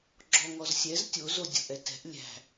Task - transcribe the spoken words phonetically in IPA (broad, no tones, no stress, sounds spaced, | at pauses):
ɡ͡ǁ ɔ ŋ ɔ z sʲ ɛ z tʲ o z o dʲ o̤ ʔ ɛ t ɛ̤ ʔ lʲ æ̤